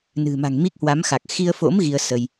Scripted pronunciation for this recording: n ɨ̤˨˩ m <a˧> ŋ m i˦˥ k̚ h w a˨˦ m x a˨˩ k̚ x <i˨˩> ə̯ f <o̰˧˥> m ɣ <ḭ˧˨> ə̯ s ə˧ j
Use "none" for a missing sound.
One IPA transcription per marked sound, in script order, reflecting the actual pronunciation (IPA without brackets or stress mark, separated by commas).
a̤˨˩, i˧, o̰˧˥, i˧